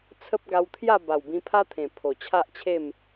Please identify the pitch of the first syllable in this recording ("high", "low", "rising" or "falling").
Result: high